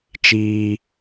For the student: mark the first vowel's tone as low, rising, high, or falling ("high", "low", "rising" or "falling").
low